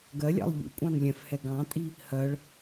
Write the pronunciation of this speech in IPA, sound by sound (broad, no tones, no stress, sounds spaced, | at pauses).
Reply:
ɡ ɜ lʲ ɑ̰ lˠ ʎ ṵ kʷʼ ɑ̃ n lʲ ɛ̃ f h ɛ ɡ ɑ̃ tʼ i | h ɜ ɭ